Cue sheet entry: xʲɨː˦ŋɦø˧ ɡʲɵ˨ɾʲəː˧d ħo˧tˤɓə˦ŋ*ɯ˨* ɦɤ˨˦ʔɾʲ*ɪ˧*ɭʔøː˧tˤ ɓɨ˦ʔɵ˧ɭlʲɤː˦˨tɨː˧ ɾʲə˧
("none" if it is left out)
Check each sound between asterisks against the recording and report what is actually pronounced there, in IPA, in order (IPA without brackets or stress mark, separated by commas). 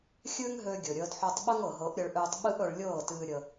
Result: ɤ˨, ə˧